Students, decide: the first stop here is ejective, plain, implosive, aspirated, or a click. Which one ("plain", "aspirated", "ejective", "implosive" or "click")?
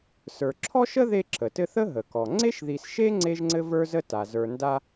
click